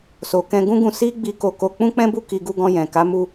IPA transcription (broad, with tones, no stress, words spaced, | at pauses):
so˨kɛ̃˧ɡũ˦ɡũ˧ si˦ ɡ͡bi˧ko˧ko˧ k͡pũ˦k͡pɛ̃˦bu˦˨ ki˧ɡu˧ɡɔ̃˧ jɛ̃˨ ka˨˦mu˧